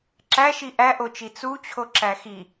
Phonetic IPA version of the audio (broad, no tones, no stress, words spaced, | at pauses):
ǁæʃi ʔæʔot͡ʃi t͡sut͡ɕʰoǁæ xi